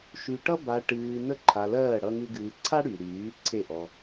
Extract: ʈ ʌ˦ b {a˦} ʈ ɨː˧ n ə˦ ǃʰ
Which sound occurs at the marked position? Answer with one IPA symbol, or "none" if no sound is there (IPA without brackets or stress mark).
a˧